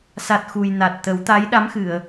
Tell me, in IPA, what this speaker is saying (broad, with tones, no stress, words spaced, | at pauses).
sa˨˩t̚ xu˨˩j na˨˩t̚t̪ə˨˩˦w t̪a˧˥jɗa˧˥mxɨ˨˩˨ə̯